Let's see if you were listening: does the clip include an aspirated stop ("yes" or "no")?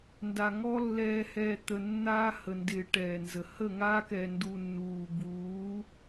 no